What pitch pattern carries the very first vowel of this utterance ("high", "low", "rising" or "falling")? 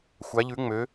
rising